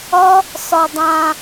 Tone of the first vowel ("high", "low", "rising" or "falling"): high